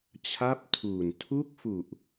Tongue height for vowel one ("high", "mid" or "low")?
low